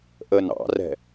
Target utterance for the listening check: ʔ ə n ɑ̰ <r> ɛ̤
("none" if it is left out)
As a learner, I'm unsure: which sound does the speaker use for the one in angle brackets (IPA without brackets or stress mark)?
r